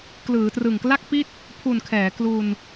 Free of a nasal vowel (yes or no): yes